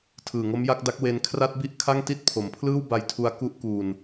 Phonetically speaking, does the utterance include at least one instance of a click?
no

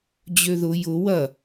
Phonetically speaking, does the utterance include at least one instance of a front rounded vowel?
yes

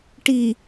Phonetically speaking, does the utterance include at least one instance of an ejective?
no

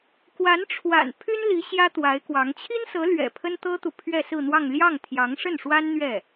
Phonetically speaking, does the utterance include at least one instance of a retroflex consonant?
yes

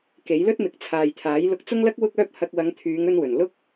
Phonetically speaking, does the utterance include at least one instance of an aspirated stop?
yes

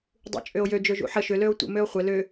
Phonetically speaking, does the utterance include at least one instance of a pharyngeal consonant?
yes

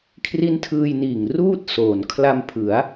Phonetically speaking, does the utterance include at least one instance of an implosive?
no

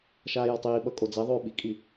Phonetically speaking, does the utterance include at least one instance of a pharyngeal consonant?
no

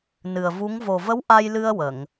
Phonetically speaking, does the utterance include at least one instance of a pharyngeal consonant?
no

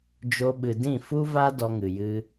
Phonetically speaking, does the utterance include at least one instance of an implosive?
yes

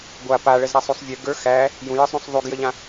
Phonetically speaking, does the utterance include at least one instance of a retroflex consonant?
yes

